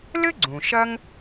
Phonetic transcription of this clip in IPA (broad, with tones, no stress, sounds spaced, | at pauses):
l ɘ˥ ɡ͡ǀ ũ˩ ʃ ɐ˥ ŋ